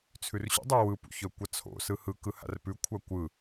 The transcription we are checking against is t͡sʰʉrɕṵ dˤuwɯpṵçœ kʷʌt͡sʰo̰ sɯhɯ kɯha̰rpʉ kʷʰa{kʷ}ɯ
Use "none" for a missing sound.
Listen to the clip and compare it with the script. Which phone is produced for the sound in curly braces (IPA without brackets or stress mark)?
kʷ